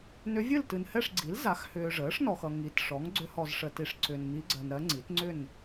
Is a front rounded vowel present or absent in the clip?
present